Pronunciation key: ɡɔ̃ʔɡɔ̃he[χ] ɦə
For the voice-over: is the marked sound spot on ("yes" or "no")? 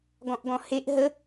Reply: no